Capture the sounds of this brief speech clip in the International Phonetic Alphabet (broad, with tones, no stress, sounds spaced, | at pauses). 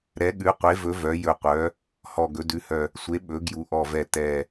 ɾ ɛ˩˧ ɠ ʉ˩˧ qʷ e˩˧ v ɵ˩˧ v œ˩˧ j ɵ˨˩ qʷ œ˩˧ | h ɔ˨˩ ɡ ɵ˩˧ d ʉ˩˧ h œ˨˩ | sʷ e˩˧ ɓ ɵ˩˧ ɡ j u˩˧ ʔ ɔ˨˩ v ɛ˨˩ t ɛ˨˩